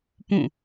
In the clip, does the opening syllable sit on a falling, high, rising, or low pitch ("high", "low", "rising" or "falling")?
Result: falling